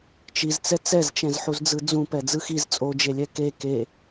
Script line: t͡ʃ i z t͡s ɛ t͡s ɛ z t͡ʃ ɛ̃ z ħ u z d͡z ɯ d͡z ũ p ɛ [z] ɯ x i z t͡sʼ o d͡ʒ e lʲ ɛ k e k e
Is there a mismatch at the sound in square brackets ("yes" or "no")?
yes